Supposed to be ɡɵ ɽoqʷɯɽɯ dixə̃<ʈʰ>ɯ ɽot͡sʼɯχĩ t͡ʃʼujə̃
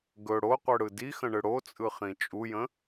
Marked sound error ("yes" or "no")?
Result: yes